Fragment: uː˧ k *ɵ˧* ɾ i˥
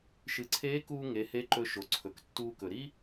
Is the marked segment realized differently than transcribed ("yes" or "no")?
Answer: yes